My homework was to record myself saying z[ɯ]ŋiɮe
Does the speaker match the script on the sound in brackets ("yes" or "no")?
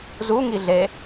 no